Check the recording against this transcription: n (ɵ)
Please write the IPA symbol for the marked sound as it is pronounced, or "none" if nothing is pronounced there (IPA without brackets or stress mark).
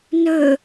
ɵ